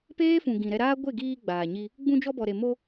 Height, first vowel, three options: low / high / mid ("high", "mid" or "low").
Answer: mid